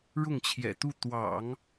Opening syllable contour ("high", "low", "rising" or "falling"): falling